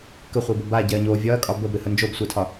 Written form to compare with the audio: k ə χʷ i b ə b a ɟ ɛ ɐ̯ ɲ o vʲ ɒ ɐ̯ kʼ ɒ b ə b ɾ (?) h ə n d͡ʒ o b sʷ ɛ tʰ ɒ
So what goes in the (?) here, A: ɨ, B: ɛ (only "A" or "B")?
A